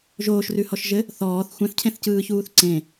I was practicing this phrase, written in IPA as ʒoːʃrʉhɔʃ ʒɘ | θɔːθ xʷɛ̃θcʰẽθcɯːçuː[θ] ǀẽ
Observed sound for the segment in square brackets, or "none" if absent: θ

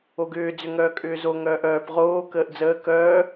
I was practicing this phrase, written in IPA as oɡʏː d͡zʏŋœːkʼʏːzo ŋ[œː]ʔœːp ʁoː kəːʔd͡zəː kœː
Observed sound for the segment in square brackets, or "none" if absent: œː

